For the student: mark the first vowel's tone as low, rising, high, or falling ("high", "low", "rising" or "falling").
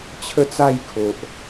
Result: falling